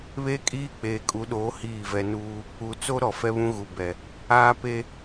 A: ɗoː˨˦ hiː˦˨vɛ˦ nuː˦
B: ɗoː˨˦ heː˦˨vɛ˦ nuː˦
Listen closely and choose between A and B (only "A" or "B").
A